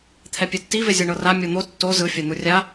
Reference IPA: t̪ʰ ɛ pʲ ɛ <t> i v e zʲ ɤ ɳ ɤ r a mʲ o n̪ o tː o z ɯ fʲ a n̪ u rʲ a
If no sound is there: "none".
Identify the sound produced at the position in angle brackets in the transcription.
tː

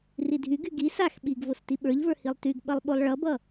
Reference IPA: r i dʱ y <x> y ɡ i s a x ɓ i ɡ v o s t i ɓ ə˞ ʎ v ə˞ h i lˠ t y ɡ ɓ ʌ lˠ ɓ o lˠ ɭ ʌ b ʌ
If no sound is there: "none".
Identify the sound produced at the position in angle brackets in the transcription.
ɡ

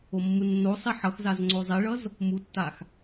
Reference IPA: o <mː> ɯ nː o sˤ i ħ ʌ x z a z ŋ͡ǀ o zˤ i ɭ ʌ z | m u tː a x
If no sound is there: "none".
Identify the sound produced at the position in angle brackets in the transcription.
mː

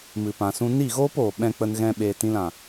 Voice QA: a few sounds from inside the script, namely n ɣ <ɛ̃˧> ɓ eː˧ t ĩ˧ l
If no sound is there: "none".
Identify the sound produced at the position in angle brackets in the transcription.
ɛ̃˧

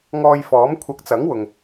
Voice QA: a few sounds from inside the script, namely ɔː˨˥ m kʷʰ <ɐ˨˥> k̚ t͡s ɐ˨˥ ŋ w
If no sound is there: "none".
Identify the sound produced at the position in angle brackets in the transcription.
ɐ˨˥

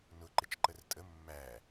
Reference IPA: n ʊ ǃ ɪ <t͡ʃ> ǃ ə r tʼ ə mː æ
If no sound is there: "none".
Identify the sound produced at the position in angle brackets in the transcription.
t͡ʃ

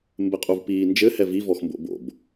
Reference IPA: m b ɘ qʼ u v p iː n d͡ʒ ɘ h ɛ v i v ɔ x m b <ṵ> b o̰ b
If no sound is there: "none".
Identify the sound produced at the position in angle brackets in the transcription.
o̰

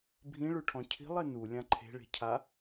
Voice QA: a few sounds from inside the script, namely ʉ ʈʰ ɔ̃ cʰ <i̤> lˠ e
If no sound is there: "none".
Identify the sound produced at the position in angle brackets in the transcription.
i̤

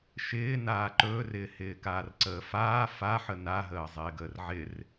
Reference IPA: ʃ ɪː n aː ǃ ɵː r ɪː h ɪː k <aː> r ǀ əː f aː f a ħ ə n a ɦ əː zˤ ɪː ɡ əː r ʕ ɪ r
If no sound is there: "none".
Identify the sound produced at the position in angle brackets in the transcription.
aː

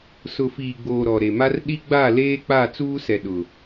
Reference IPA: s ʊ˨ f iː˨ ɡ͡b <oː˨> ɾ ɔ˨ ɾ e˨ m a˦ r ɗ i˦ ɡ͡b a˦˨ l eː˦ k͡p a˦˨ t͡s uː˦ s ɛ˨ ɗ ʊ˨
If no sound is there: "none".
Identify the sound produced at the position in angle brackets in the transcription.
oː˨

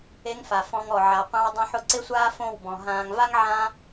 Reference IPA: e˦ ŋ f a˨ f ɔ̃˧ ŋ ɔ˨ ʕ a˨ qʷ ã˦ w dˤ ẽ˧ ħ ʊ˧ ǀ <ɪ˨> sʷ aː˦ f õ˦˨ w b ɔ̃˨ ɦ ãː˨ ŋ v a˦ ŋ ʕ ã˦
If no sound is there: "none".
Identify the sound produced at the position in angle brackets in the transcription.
ɪ˦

